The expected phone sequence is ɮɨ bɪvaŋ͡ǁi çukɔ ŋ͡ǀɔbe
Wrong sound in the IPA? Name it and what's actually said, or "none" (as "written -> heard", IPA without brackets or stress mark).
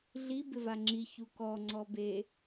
ɨ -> i